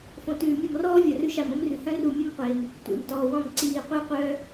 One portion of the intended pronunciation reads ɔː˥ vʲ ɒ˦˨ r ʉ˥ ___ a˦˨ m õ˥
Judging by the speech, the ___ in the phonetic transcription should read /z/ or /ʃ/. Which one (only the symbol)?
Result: ʃ